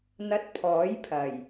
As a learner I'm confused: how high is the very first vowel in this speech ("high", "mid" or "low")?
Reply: low